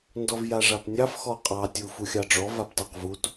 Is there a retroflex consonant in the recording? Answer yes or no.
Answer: yes